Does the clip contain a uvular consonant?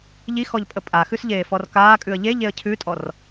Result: no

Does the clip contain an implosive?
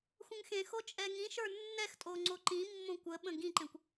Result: yes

